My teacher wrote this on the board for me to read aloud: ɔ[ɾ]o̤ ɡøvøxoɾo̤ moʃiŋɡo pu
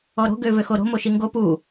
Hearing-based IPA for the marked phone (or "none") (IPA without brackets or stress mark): ɾ